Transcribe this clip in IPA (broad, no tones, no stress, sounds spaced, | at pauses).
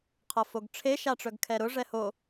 qʰ ɤ f o ɡ ʈ͡ʂʰ e ʃ a ʈ͡ʂ œ ɡ kʰ ɛ ɾ ʊ ʐ ɛ h o